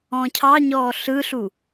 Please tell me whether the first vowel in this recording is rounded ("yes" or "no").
yes